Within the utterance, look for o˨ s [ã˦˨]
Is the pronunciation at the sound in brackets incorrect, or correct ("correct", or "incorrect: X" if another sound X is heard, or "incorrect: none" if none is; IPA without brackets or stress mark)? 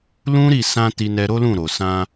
incorrect: ã˧